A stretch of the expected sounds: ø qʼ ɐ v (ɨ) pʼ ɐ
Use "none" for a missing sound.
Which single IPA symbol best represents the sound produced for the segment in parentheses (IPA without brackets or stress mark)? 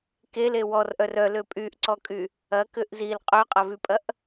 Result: y